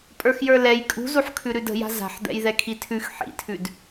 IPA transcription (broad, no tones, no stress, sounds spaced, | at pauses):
pʼ ə˞ x j ə˞ l ɛ j kʼ ṳ z u ħ kʰ ʉ ɾ ʉ d ə̤ j a̤ z a̤ ħ d̪ ɛ̰ j ð ɛ kʰ i tʰ ʉ x ħ ḭ tʰ ʉ d